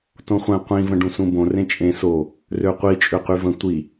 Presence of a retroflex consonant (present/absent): present